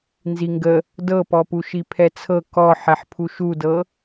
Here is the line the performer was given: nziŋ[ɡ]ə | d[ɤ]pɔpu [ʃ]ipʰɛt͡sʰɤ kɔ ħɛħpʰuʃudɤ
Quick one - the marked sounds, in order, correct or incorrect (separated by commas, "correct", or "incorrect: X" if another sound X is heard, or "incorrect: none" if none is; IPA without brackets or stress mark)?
correct, correct, correct